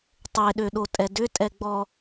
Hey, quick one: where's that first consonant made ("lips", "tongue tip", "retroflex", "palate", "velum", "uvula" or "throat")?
tongue tip